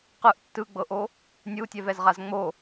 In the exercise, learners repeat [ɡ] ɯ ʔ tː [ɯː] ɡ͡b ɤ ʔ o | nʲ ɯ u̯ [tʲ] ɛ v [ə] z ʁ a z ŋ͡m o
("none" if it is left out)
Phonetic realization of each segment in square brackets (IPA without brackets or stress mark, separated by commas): q, ɯ, tʲ, ɛ